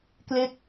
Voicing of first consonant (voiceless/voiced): voiceless